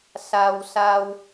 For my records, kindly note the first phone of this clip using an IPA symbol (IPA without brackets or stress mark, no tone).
s